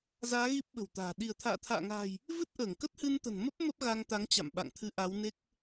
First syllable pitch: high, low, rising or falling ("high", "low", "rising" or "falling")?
rising